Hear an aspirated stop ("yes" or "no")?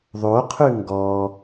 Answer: yes